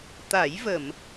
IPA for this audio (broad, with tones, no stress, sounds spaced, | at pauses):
t̪ a˨˩˦ j v ə˨˩˨ m